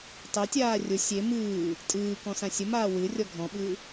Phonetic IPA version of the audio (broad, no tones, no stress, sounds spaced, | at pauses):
tˤ e tʲ aː rʲ ʊ sʲ e m ɨː | tʼ ɨː k ɔ̃ s ã sʲ ə m aː w ɨ rʲ ɔ ɡʱ ɔ̃ ɓ ɨː